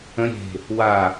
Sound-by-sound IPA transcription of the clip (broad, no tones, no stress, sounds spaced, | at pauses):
ə̃ ɾʲ e̤ | w a